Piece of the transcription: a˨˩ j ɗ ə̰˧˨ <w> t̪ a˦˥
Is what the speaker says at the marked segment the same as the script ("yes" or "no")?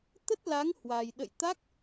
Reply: no